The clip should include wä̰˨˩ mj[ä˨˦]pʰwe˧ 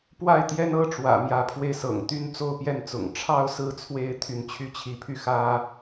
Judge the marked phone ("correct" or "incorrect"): correct